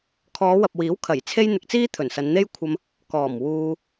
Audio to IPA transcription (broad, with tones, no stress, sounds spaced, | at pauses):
kʰ ɔː˨˧ w ɐ˨ p̚ w iː˨˥ w kʰ ɐ˨˩ j t͡sʰ e˧ j n̪ ɪ˨ k̚ t͡s iː˥ t̪ʰ ɵ˨˩ n s ɐ˨˧ n n̪ e˥ j kʷʰ ɐ˧ m | k ɔː˨˩ m w uː˧